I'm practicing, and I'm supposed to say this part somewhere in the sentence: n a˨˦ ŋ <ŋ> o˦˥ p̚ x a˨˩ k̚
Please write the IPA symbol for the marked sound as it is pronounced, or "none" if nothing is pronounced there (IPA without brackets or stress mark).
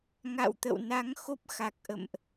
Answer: x